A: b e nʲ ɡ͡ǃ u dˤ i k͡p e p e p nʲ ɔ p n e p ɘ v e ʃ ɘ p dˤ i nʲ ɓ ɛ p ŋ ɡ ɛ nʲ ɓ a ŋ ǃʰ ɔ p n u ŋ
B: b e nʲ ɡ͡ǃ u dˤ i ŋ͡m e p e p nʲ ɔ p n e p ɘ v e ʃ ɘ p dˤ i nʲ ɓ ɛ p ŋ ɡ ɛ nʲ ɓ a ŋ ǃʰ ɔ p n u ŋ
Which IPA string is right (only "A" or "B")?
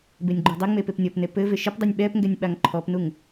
B